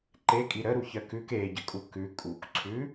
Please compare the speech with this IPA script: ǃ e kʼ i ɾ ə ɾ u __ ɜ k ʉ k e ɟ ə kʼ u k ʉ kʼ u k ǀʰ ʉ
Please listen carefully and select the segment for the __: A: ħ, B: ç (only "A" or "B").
B